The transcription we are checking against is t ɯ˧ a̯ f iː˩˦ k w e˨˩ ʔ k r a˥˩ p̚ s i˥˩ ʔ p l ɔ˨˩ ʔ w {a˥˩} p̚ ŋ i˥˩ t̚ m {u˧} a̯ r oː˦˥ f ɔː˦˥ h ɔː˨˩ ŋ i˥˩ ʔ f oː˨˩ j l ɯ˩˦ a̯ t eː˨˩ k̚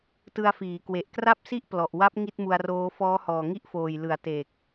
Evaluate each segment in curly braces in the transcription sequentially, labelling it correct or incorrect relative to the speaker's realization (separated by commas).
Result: incorrect, correct